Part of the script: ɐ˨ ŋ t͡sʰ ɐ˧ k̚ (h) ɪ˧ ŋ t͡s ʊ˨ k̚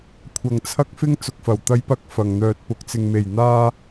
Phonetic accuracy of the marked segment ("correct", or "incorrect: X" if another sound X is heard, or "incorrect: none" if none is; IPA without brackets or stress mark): incorrect: f